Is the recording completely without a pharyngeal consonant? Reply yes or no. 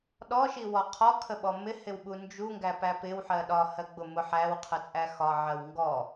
no